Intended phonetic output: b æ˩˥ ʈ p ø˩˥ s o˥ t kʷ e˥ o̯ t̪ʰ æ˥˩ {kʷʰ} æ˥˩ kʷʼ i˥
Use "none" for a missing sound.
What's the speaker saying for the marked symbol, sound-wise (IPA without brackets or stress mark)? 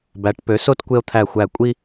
xʷ